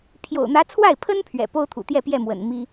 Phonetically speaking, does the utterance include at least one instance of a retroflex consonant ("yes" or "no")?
no